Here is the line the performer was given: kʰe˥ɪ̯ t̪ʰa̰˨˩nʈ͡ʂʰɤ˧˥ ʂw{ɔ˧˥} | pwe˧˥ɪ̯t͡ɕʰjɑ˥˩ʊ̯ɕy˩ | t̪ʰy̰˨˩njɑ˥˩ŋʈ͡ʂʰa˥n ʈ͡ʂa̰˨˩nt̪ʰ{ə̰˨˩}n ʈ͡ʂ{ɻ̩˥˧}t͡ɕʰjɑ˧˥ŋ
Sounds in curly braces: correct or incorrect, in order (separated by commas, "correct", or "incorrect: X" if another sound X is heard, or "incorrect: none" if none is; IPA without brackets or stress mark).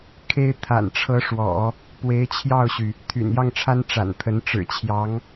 incorrect: ɔ̰˨˩˦, incorrect: ə˧˥, incorrect: ɻ̩˨˩